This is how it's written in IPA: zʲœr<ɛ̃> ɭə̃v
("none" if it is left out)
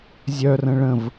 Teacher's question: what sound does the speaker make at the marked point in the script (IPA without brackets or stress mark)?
ə̃